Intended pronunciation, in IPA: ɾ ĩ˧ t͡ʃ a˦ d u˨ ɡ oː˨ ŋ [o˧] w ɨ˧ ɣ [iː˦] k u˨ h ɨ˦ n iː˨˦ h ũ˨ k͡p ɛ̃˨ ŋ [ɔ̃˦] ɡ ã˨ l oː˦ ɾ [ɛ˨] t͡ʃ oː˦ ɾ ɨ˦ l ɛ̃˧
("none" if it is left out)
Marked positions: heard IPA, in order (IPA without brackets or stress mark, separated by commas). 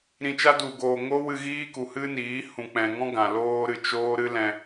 o˦, iː˦, ɔ̃˦, ɨ˨